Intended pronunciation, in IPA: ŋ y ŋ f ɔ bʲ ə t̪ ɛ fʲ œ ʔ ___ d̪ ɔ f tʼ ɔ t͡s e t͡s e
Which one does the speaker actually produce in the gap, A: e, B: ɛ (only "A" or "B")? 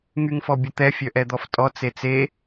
B